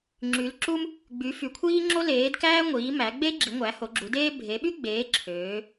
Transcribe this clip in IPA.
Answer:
ŋ͡ǁ y˨˦ l ǁ u˥ m | ɡ͡b y˨˦ f y˨˦ kʷʰ iː˥ ŋ͡ǁ o˥ l eː˨˦ d k æː˥ ŋʷ iː˨˦ m æ˨˦ ɡ͡b e˥ ɡ͡ǁ i˨˦ ŋʷ æ˨˦ h o˨˦ ɡ͡ǁ u˨˦ d eː˥ bʱ e˨˦ ɓ y˥ ɡ͡b eː˨˦ ǁʰ øː˨˦

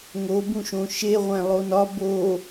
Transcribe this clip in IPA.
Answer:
ŋ o b ũ ʃ õ ʃ e ʁʷ æ̃ lˠ o n ɒ b o

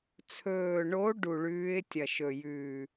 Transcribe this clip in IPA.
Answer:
t͡sʰ ɵː˨˩ ɳ o˨˥ ɖ u˨˩ ɭ ʉː˨˥ ɪ̯ tʲ ɐ˨˩ ʃ ɵ˨˩ j ʉː˨˩

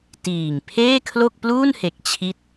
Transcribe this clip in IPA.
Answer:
t iː˨˩ ŋ pʰ eː˥˩ kʰ l o˥˩ k̚ p l uː˥˩ n h e˨˩ k̚ t͡ɕʰ i˦˥ t̚

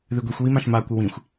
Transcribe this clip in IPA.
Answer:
ð ɨ ɡʷ i xʷ w i m ã ʃ m a kʷ ə w ĩ xʷ

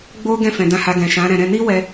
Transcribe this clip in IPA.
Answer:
ɡ͡b o˦ ɡ ɛ̃˦˨ f ɛ̃˨ d ã˧ h a˧ ɡ ɛ̃˨ ʃ ã˨˦ ɾ ɛ̃˧ ɾ ɛ̃˧ n i˦ w ɛ˧

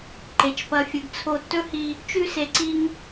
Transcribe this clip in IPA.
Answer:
ǃ e˨ t͡ʃ p ɐ˧ fʲ ɨ˨ ɡ t͡sʰ o˦ tː ɵ˦ h i˧ | t͡ʃ ʉ˧ s e˨ ǀ i˧ ŋ

